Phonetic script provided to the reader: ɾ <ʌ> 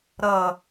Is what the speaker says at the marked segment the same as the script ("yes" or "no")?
yes